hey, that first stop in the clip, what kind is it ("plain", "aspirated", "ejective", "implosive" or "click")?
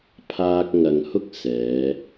aspirated